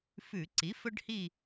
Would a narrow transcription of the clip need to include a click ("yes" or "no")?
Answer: yes